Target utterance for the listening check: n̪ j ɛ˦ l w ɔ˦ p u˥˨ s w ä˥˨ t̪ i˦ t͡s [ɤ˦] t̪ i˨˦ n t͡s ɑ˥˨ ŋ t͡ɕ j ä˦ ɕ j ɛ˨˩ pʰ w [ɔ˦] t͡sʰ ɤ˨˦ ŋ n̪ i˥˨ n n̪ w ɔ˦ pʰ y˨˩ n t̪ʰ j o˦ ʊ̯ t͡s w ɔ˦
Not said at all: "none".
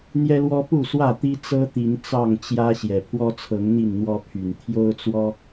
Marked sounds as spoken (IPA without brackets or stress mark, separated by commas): ɤ˦, ɔ˦